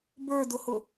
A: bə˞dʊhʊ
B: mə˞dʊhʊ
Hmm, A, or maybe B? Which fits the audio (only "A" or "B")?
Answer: A